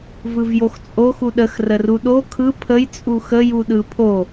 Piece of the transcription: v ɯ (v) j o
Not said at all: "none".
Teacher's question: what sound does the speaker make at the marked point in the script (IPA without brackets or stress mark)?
v